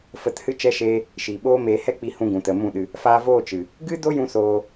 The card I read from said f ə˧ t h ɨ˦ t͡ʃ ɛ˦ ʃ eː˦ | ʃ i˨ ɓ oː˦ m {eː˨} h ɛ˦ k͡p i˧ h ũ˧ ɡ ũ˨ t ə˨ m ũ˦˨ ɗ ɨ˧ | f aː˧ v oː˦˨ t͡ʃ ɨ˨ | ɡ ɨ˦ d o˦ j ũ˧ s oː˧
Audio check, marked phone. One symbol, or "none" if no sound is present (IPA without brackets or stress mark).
eː˧